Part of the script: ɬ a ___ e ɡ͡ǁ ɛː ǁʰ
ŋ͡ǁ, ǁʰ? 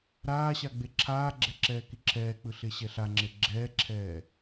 ŋ͡ǁ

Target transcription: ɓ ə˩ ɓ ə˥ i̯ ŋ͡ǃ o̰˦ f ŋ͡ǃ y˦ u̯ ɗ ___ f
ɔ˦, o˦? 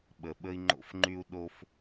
o˦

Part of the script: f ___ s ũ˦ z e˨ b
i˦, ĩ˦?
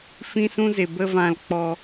ĩ˦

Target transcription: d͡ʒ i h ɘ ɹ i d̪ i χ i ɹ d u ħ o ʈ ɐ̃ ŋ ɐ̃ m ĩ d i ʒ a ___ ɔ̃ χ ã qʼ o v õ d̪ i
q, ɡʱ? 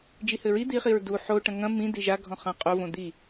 ɡʱ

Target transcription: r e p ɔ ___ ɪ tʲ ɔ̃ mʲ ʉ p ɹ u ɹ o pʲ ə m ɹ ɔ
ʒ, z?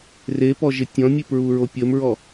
ʒ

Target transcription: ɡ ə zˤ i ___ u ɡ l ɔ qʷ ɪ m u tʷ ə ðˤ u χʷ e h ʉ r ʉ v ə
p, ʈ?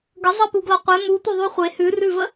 p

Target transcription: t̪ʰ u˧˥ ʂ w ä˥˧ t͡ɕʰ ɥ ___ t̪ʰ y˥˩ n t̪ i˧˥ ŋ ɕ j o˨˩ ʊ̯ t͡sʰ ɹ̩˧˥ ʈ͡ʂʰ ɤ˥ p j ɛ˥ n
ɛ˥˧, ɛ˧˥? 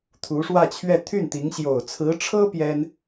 ɛ˥˧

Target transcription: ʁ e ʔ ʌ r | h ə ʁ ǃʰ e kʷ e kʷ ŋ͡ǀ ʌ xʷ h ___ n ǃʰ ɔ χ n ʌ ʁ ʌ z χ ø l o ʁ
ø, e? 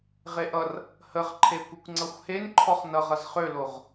e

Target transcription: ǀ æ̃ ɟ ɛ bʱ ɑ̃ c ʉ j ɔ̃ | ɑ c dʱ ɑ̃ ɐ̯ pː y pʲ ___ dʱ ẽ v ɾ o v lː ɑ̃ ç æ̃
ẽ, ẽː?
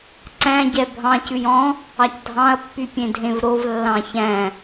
ẽ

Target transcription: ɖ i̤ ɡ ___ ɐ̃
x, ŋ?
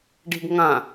ŋ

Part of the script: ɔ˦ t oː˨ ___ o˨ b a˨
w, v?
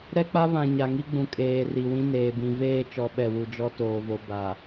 v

